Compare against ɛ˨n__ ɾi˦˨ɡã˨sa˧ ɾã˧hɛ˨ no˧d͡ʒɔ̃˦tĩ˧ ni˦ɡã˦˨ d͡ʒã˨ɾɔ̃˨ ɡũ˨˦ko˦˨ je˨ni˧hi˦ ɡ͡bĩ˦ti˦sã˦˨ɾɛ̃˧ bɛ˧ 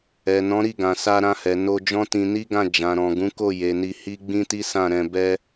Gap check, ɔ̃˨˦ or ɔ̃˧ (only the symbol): ɔ̃˨˦